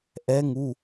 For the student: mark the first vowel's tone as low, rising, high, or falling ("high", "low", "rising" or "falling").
rising